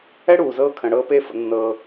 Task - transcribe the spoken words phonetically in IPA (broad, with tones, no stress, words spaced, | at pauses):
ɛ˥ɽuː˩zɤː˧ kʰə̃˩ɽɤː˧ peː˧fə̰˩ nːɤː˩